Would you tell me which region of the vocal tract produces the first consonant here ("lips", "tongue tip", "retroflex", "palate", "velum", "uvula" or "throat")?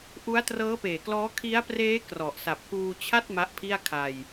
throat